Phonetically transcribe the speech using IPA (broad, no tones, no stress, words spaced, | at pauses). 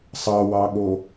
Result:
sˤɑwɑɠo